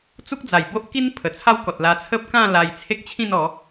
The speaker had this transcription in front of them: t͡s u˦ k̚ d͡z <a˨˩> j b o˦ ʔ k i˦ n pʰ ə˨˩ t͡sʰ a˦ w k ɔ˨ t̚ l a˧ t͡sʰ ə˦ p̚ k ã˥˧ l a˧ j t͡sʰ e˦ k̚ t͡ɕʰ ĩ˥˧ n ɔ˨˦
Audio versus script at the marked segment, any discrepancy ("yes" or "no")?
no